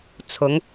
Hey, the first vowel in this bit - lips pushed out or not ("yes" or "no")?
yes